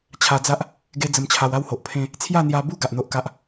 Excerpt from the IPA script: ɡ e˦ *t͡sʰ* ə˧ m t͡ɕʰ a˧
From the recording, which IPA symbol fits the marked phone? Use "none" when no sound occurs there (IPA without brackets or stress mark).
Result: d͡z